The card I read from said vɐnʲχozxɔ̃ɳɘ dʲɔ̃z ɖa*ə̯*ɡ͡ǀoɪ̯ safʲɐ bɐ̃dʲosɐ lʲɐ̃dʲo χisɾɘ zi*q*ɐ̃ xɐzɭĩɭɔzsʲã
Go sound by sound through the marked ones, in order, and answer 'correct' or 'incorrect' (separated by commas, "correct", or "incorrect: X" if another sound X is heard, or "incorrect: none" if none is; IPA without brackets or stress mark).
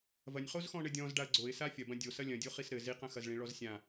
correct, correct